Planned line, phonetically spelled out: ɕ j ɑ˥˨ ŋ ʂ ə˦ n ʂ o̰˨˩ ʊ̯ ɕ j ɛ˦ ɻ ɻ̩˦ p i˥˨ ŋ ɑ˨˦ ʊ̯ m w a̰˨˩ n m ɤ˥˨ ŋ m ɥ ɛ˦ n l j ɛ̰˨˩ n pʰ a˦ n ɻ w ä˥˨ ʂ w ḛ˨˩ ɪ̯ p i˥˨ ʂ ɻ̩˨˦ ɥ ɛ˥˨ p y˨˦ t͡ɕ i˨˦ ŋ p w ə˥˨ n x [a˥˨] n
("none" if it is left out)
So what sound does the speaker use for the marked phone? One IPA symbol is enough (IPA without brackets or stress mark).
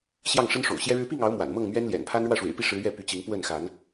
a˨˦